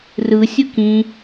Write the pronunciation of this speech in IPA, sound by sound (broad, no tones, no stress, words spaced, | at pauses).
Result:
rɯ sʲɯkĩ